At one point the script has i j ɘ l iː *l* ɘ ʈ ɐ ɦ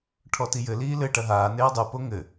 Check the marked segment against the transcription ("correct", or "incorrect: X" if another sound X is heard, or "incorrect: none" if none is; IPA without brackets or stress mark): correct